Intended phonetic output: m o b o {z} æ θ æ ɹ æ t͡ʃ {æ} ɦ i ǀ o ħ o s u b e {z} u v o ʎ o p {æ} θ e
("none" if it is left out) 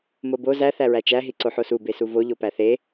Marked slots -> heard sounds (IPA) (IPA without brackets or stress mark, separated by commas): z, æ, s, æ